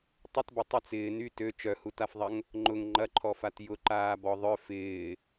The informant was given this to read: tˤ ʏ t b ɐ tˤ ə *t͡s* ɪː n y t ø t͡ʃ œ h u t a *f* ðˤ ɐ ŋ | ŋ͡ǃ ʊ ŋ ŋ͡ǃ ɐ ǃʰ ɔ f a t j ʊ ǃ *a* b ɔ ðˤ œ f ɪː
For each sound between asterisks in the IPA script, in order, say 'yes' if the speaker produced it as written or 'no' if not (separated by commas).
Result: yes, yes, no